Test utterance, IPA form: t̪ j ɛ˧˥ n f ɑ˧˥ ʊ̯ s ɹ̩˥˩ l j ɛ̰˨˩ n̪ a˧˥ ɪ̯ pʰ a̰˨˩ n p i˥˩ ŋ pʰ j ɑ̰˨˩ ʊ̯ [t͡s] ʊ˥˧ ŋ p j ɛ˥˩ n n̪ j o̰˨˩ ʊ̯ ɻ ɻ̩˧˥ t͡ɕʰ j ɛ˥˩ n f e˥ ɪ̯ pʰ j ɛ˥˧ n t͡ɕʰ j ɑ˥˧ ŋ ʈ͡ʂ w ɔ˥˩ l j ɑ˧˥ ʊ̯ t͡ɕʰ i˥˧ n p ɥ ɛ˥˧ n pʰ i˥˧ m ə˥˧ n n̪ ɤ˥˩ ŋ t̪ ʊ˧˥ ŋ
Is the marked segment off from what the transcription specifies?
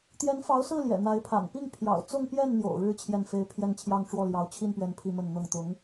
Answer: no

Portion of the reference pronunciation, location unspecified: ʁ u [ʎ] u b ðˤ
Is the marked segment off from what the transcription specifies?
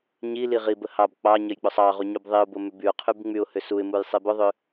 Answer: yes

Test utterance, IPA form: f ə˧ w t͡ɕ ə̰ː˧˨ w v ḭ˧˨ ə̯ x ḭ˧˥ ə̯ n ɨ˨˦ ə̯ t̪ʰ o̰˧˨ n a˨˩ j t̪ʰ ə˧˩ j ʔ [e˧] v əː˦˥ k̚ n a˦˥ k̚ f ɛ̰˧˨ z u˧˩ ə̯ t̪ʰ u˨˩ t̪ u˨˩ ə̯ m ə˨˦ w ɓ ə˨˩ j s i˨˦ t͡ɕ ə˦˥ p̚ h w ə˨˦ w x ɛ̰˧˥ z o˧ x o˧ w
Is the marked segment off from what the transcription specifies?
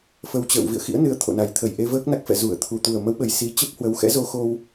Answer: no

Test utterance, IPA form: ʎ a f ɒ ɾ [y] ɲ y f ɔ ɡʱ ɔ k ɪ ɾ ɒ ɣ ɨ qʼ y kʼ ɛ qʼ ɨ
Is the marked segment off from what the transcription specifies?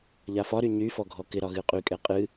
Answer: no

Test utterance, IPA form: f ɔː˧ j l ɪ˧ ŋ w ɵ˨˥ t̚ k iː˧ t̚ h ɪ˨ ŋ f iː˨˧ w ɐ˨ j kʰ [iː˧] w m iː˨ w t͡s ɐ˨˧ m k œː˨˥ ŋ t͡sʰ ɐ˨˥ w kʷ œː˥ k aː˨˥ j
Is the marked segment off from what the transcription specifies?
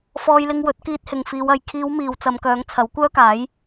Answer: yes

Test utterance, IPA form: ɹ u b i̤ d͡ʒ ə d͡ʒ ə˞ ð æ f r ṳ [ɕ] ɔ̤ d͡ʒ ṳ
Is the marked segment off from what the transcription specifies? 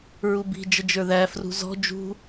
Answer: yes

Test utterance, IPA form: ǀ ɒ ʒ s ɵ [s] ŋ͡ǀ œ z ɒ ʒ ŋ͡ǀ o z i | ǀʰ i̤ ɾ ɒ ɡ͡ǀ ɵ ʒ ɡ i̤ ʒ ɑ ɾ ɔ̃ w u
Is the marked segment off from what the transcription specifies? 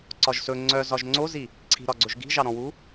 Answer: yes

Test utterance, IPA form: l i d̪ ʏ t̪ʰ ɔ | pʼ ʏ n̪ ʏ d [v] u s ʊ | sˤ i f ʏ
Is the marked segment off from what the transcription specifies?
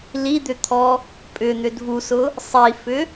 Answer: no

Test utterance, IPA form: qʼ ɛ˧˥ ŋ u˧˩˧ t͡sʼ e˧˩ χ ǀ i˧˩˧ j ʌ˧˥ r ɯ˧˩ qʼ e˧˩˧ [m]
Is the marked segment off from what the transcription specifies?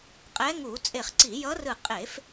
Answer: yes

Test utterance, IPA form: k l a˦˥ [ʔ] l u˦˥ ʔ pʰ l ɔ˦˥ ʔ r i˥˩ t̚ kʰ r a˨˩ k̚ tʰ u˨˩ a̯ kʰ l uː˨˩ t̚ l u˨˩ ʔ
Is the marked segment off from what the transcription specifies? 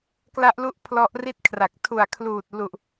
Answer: no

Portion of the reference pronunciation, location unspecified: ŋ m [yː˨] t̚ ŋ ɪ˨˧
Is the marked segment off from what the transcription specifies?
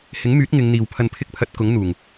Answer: yes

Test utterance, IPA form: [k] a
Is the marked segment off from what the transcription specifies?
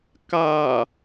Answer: no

